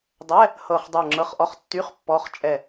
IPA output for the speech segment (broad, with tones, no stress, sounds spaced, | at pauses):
dˤ ɛ˧˥˧ | h ɤ˦˨ χ dˤ ə˞˦˨ ŋ͡ǁ ɤ˧˥˧ χ ʔ ɔ˧˥˧ χ tː y˧˥˧ χ pː ɔ˧˥˧ χ t͡ʃʼ ɛ˦˨